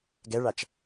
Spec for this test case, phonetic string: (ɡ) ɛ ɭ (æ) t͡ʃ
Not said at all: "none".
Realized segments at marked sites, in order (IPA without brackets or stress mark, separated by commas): ɡ, a